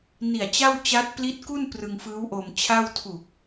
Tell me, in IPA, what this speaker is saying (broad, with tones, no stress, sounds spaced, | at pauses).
n i˨˩ a̯ t͡ɕ a˥˩ w t͡ɕ a˦˥ t̚ p l i˦˥ t̚ k u˥˩ n p r ɯ˧ ŋ f ɯː˦˥ w ʔ o˧ m t͡ɕʰ a˥˩ w tʰ u˨˩ k̚